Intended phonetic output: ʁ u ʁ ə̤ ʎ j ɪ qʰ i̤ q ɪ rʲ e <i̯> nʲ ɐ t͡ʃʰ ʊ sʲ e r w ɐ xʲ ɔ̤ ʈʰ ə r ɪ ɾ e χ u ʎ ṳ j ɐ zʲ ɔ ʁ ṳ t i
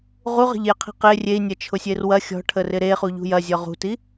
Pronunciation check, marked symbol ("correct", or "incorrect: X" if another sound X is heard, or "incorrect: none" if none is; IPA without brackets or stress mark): correct